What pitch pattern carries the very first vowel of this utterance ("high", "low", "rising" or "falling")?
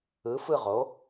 rising